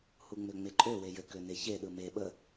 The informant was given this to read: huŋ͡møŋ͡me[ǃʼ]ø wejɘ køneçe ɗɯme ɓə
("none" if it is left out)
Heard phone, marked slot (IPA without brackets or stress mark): ǃʼ